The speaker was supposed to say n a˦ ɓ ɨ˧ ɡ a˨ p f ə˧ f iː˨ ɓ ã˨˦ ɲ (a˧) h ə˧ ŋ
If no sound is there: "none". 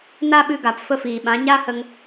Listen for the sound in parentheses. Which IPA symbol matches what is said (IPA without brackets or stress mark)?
a˦